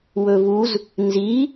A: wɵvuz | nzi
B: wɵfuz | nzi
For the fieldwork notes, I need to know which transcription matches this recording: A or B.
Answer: A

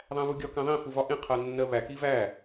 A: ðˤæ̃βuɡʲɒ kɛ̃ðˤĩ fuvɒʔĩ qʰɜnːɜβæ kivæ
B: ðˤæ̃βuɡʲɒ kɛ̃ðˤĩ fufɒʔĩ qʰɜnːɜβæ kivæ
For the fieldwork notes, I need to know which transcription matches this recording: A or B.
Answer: A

